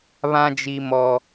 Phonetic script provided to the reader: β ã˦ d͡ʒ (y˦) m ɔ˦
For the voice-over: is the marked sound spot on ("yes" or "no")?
no